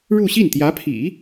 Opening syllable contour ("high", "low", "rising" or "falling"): falling